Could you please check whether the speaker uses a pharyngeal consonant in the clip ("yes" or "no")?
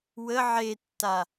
yes